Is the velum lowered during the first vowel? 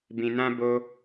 yes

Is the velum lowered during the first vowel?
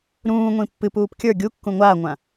yes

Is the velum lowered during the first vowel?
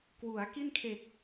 no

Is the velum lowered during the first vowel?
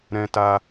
yes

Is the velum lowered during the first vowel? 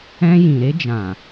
yes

